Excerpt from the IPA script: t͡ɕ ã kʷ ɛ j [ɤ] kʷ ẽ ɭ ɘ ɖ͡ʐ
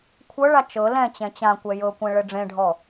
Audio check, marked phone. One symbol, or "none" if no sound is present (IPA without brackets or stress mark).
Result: ɤ